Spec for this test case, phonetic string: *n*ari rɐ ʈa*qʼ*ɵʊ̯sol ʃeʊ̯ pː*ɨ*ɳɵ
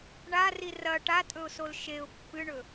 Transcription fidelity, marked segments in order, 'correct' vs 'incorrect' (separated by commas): incorrect, incorrect, correct